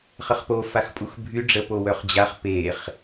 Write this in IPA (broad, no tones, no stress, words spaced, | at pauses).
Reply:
χəχpo faxpʼuxbʱy ɖ͡ʐə powœχd͡ʑaχ peχ